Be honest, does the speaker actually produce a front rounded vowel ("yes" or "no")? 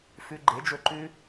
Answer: no